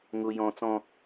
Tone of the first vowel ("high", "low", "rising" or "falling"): high